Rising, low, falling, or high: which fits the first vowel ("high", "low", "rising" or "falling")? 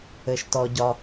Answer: low